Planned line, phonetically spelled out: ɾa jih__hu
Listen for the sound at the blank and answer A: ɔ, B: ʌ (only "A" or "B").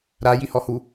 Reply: A